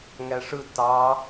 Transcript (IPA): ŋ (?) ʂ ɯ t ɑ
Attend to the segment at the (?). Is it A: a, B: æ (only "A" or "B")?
B